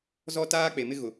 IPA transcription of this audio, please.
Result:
z ɔ˦ t aː˦ k͡p e˨ m ɪ˦ ɣ ʊ˨

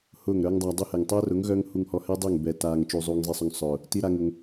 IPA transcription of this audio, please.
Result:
h ʊː˦˨ ŋ ɾ œː˦ ŋ dˤ aː˧ dˤ u˦ h ɛ˨ ŋ tˤ œː˦ r ʊ˨˦ ŋ ɣ œ˦ ŋ h u˧ ŋ h ɔ˧ h ɛ˦ dˤ ʏː˦˨ ŋ b ɛ˨ t aː˨ ŋ t͡ʃ u˨ zˤ uː˨ ŋ zˤ i˨ sˤ ʊ˧ ŋ sˤ ʊː˨ | t i˦ ɾ a˦ ŋ ʊ˧ ŋ

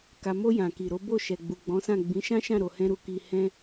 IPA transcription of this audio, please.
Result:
k a˨ m o˧ j ã˨ k i˨ ɾ o˨˦ b o˦˨ ʃ ɛ˨ ɡ͡b u˨ ɡ͡b ɔ̃˨˦ s ã˦˨ ɡ͡b ĩ˨˦ ʃ ã˦ ʃ ã˦˨ ɾ o˧ h ɛ̃˦ ɾ u˧ k i˧ h ɛ̃˦

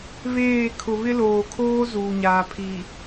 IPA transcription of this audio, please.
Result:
β eː˦˨ kʰ ʊ˨ β ɪ˦ l oː˨ kʰ oː˦ z uː˨ ɲ aː˨ pʰ i˨

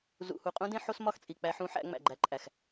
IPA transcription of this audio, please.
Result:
z ṵ˨ h u˨ qʼ ũ˦ d ẽ˦ ħ o˦ s m ɒ˦ x t͡sʼ i˨ k͡p æ˦ ħ ũ˦ ħ æ̰˦ ŋ͡m æ̰˨ ɡ͡ǃ æ˨˦ ǃʼ æ˨ x

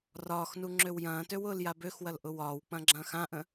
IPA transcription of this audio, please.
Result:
r ɒː x n u ŋ͡ǁ ø w j ɐ̃ː t ø w ʊː l j a b ø x w ɐ l ʔ ʊ w ɒː w k͡p ɐ̃ ɡ͡ǁ ɐ̃ː x ã ʔ ə̃

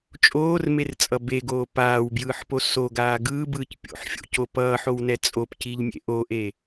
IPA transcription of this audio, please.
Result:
t͡ʃʼ oː r m e r t͡sʼ ʌ b e ɡ oː p aː w b j ɯː ħ p o s o ɡ aː ɡ ɯː b ɯː c pʲ o̰ ħ fʲ o̰ c o p ʌː ħ o w n ɛ t͡sʼ o p c i ʎ mʲ ḛ ʔ o ʔ e

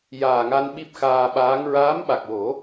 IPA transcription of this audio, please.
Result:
j aː˨˩ ŋ a˧ n ɓ i˦˥ p̚ x aː˧ ɓ aː˧˥ ŋ ɹ aː˧˥ m ɓ a˨˩ k̚ w o˨˩˦

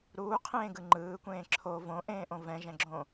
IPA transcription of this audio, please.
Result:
ɾ uː qʰ ẽː ɡ ɯ ŋ͡ǃ ɯː kʷ ẽː ǁʰ o v õ ʔ ẽː ʔ õ v ɛ̃ ʒ ɛ̃ ɡ͡ǁ õ

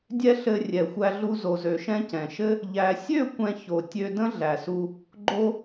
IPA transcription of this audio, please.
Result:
dʲ ɛ˦ ɬ ɘ˧ rʲ ɛ˨ xʷ æ˧ ɮ u˧ z o˨ z ø˨ ʃ ɛ̃˧ c ɛ̃˨ ʃ ɘ˦ | ʎ æ˨ sʲ ø˦˨ kʷ ɛ̃˧ ç o˨ tʲ ø˧ d ə̃˦ ɮ æ˨ s u˧ | ɡ͡ǃ o˧

